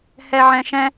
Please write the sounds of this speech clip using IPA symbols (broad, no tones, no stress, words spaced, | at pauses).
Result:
hɛʕɛ̃ʃɛ̃